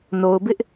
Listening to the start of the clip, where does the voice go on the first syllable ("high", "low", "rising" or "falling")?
low